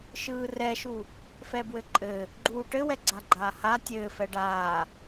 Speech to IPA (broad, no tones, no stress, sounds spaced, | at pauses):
ʃ ɯː r ɛ ʃ u | f ɛ b w ɘ ǃʼ ɘ | ɡ͡ǃ uː ʈ ɘ w ɛ ɡ͡ǀ a ɡ͡ǃ aː h a tʲ ɘː f ɛ ɖ aː